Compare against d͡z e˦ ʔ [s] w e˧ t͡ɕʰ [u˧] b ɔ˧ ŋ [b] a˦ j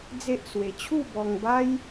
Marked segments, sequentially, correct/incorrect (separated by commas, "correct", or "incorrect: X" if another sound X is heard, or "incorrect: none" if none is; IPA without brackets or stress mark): correct, incorrect: u˥˧, correct